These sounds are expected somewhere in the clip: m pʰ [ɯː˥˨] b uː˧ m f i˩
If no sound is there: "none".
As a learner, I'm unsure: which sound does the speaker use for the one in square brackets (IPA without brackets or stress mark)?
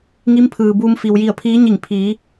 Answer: ɯː˩